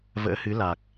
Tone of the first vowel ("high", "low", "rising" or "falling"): rising